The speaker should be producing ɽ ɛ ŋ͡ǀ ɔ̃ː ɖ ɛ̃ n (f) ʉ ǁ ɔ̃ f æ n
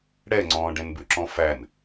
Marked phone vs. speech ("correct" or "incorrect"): incorrect